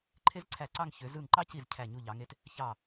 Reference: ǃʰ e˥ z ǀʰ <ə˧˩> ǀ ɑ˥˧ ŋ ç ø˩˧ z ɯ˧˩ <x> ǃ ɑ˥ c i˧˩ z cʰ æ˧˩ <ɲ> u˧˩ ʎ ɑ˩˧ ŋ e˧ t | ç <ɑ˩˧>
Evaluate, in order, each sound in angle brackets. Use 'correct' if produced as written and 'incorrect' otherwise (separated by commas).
incorrect, incorrect, correct, incorrect